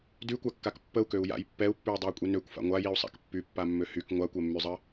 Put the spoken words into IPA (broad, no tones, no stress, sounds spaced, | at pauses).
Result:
d y kʷ a kː a k pː ə u̯ k ø u̯ j a̰ j pː ɛ u̯ pː y u̯ dˤ y u̯ kʷʼ i n ø kʷ f a̰ ŋʷ a j i u̯ sˤ a̰ k pː y pː a mː ø h y k ŋʷ a kʷ ɛ mː y zˤ ə